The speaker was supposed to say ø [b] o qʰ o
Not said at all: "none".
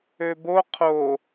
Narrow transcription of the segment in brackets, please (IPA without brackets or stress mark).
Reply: b